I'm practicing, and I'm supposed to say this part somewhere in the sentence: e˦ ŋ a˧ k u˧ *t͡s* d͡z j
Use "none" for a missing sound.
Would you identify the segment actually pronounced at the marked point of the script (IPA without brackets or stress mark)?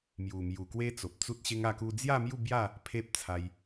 none